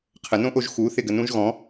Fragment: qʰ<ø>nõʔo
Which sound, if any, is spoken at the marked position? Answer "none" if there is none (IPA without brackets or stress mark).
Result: ə